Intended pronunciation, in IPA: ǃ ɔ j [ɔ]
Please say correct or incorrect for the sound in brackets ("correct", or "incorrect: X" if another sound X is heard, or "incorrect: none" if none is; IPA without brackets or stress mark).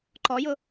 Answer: incorrect: ʊ